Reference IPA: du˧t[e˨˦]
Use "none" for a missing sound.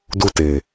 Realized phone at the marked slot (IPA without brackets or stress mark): e˨